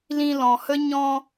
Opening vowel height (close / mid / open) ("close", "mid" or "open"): close